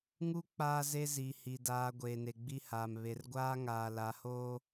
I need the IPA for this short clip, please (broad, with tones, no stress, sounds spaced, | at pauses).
ŋ u˦ k͡p aː˦ z e˦ z i˨ h i˨ d aː˨ ɡʷ eː˨ n e˨ ɡ͡b i˦ h aː˨ m β e˨ r ɡʷ aː˦ ŋ aː˨ l a˨ h oː˦